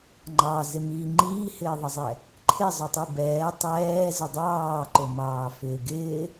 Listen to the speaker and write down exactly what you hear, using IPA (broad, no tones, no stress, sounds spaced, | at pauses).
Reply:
ŋ͡ǃ ɑ z ɪ m iː ŋ͡ǃ iː h ɪː ðˤ ɪ zˤ ɛ | ǃʰ ɪ zˤ ʊ tˤ i b ɛː tˤ ɛː z ʊ dˤ ɑː ǃ ʊ m ɑː f ɪː ɡ ɪː